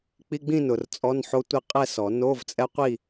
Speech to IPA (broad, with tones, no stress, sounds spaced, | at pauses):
k͡p i˧˥˧ ɡ͡b ĩ˥˧ n ʊ˨ r t͡sʼ ɔ˧˥˧ n ħ o˦˥ tʷ ɪ˥˧ qʼ ɛ˥˧ s ɔ˨˩˦ n o˧˥˧ v t͡sʼ ɛ˦˥ qʷ i˥˧